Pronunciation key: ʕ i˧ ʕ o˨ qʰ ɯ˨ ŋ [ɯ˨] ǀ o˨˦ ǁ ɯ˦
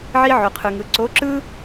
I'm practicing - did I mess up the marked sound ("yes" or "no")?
no